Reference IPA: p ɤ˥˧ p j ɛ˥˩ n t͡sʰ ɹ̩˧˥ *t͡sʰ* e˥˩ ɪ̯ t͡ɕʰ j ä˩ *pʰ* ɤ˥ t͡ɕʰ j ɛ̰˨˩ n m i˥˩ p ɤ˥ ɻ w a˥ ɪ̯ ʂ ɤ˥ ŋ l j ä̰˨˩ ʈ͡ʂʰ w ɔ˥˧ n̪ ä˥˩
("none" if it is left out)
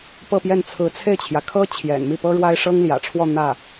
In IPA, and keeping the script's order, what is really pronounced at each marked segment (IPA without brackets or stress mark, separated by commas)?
t͡sʰ, kʰ